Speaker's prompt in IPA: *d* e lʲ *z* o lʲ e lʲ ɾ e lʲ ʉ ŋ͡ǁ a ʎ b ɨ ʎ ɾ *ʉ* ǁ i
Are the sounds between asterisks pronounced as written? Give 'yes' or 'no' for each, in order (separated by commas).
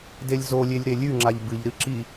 yes, yes, no